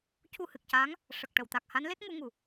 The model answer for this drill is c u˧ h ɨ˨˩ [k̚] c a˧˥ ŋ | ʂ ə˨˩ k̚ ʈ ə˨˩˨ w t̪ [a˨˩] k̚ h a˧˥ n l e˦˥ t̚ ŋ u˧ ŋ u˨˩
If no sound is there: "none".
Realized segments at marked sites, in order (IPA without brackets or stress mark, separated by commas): k̚, a˨˩